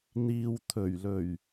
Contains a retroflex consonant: no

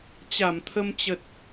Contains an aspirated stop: yes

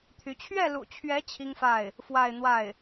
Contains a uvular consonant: no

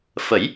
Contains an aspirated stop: no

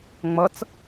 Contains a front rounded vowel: no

